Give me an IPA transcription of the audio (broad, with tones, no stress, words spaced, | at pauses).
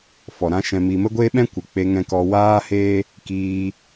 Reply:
fɔ˨ɾã˦ʃɛ̃˧ mi˧ mə˦ɡʷeː˦ɓɛ̃˦ kʷɨ˨k͡pe˧ ŋɛ̃˧kɔ˧ waː˦heː˦ | kiː˧